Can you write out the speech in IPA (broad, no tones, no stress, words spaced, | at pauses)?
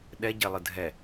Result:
ɗɛɟelˠɯ dʱɛ